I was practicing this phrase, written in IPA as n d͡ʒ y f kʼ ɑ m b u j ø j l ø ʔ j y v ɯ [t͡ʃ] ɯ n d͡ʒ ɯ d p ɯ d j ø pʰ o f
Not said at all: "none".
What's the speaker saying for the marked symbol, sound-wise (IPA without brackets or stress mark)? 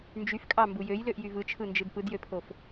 t͡ʃʰ